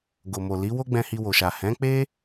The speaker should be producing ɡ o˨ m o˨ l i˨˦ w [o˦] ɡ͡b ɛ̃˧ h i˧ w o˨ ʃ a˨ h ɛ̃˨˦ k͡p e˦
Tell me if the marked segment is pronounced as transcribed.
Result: yes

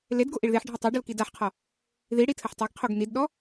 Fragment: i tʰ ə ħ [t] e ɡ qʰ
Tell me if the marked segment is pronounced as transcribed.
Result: no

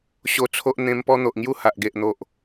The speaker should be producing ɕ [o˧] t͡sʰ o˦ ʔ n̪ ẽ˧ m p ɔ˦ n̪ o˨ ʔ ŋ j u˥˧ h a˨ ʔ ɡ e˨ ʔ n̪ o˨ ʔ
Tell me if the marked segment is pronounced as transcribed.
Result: no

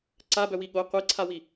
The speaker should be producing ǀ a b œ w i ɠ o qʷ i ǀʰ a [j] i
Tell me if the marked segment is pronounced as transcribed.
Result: no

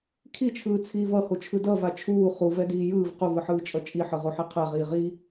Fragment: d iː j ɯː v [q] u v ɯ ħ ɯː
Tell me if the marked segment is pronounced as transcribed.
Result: yes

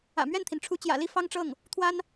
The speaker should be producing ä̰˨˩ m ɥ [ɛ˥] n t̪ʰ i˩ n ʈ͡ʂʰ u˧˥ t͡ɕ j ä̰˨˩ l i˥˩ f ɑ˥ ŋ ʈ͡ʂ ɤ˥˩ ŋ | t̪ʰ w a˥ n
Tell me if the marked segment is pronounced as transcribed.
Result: no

